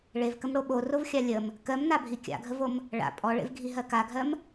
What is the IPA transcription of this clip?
ɭevkəmɽo ɓorovxʲa lʲəm | kɜmnabʱi kʲa̰ɡʱəvom | ɭa̰ pʼɔɭḛvɡʱiɦɜ kaɡʱɜm

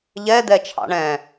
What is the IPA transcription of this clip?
ʎɛ d̪ɛt͡ʃʰɑ̰ɳɛ̃

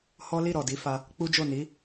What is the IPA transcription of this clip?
hɔ˦ li˦˨ ɾɔ˨di˨˦ fa˧ | k͡pu˦d͡ʒo˦˨ ni˨˦

